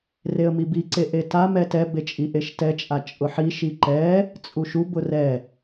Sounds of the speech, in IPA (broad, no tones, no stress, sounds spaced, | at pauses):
r e ə̯ m i b i ǀ e ʔ e t a m ɛ t ɛ b e t͡ʃʼ i ʔ e ʃ t ɛ t͡ʃʼ a t͡ʃʼ ʊ ħ i ʃ i ǃ ɛ | t͡sʼ u ʃ u b ʊ r ɛ